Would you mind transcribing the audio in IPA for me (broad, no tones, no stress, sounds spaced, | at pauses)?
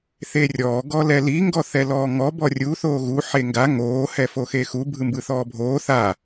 θ e rʲ ɔː ɡ ɔ l ɛ l i ŋ ɡ ɔ θ ɛ l ɔː ŋ ɔ b ɔ rʲ u θ oː ɣ u ħ e ŋ ɡ a ŋ oː h ɛ f o x e x u bʱ ɯ m b ɯ θ ɔː bʱ oː θ a